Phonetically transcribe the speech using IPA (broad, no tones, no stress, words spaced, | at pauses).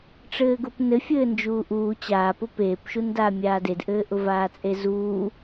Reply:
ʈ͡ʂɘːɡʊpnɘ fʲɘːnd͡ʒuːʔuː t͡ɕaːpʊ peːpʃundaː mʲaːdedʔɘːʔʊ vaːt͡sʼezuː